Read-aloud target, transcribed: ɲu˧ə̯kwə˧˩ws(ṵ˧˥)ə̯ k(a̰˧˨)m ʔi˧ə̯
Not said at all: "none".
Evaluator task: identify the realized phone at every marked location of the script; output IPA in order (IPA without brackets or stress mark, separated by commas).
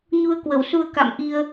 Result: u˧, a̰˧˨